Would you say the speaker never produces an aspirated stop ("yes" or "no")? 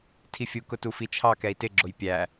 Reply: no